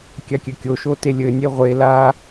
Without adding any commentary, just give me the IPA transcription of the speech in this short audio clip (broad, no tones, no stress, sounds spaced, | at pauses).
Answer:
kʲ a kʲ ɘ kʲ o ʃ o t e lʲ ɘ nʲ e ʁʷ e l a